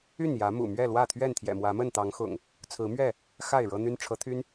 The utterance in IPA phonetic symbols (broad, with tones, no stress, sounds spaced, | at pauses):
y˥˨ n j ä˨˦ m ṵ˨˩ m ɥ ɛ˥˨ l w ä˥˨ t̪ʰ ɥ ɛ˥˨ n t̪ʰ j ɛ̰˨˩ m w ä˨˦ m ə˥˨ n t̪ ɑ˨˦ ŋ x ʊ̰˨˩ ŋ | t͡sʰ ɹ̩˨˦ m ɥ ɛ˥˨ | x a˥˨ ɪ̯ ɻ ɤ˦ n̪ y˦ n ʈ͡ʂʰ ɤ˨˦ t̪ʰ y˦ n